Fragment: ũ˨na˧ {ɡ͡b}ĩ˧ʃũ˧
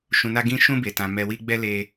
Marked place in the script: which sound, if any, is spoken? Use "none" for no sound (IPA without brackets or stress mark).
ɡ